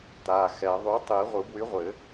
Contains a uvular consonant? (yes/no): yes